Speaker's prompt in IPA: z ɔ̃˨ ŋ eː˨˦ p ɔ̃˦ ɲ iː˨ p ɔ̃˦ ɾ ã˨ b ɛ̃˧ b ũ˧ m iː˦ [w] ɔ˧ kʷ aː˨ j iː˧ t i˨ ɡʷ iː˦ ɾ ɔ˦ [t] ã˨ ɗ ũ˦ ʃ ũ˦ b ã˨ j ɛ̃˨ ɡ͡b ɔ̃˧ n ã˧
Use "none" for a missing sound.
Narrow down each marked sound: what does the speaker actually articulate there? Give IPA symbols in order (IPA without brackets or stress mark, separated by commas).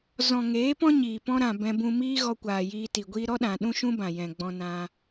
ɣ, ɗ